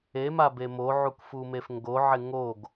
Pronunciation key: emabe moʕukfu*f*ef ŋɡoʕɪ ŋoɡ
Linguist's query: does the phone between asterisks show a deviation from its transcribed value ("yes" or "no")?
yes